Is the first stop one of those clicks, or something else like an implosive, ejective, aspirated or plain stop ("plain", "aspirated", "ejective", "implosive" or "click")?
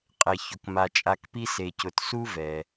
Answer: ejective